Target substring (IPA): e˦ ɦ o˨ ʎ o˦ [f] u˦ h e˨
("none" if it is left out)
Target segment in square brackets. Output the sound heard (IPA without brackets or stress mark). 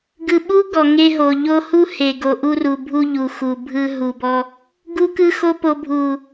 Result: h